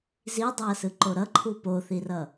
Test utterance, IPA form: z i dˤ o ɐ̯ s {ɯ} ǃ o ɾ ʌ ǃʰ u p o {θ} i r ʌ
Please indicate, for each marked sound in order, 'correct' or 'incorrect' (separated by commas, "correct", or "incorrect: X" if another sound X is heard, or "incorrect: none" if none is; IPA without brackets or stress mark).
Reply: correct, correct